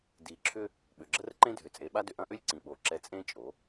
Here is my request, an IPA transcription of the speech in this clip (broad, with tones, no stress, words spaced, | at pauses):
di˨ǁʰʏ˦ | ɓʏ˨ɡ͡ǁə˦rǃẽ˦ dʱʏ˨t͡sʼe˨˦ɓa˦ dʏ˨ʔɐ̃˦ʔʏ˦lʲ ǀĩ˨ɓo˨ ǁɛ˦ t͡sʼẽ˦t͡ʃʼo˨˦